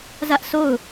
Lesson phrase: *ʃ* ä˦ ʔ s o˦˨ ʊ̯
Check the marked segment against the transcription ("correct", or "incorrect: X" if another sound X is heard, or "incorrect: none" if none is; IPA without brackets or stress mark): incorrect: z